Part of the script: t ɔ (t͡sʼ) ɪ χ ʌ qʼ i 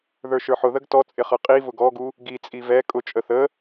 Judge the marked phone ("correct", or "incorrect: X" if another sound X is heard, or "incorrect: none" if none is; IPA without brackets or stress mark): correct